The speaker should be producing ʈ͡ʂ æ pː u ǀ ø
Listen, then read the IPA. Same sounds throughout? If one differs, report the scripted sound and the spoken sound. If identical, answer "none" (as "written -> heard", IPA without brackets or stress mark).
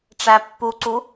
ø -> u